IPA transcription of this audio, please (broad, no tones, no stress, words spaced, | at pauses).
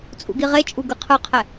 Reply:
t͡sʼṵɡiʁet͡ʃʼu ɡɯqʰɯqʰɛ